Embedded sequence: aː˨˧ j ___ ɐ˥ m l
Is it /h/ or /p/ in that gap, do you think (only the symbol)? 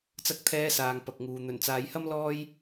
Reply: h